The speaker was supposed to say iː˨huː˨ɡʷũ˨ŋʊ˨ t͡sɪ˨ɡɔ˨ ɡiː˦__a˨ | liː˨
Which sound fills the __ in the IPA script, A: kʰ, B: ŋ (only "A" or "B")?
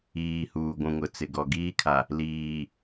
A